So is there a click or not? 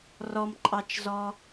yes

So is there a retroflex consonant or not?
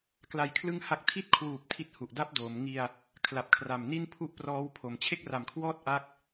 no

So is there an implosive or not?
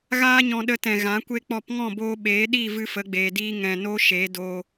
yes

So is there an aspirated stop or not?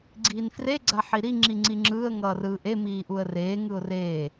no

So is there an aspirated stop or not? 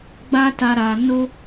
no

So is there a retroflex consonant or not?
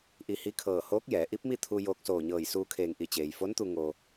no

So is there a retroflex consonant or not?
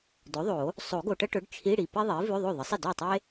yes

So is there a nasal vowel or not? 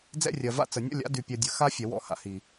no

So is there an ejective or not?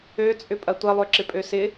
yes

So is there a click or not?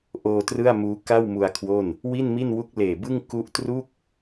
no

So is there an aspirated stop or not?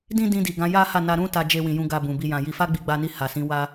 no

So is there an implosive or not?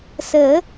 no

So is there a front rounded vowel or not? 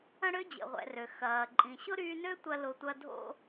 yes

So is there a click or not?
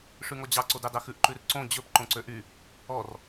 yes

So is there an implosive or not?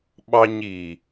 yes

